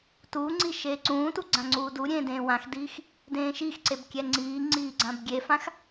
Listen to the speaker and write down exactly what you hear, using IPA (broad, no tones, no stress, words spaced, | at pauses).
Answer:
tuŋ͡ǀi ʃeːǀũːtu ɡ͡ǀãŋ͡ǀuːduɾʲẽː dẽːwãxdiːx | dẽːʃixǀeb kʲɛŋ͡ǀiːŋ͡ǀiː ɡ͡ǀãbɡʲefãx